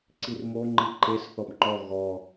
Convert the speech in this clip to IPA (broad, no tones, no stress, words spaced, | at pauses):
ǀirmo ŋ͡ǃiǃes θɔbŋ͡ǃɔ ɣɔ